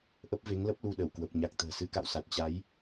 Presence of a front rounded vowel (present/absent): absent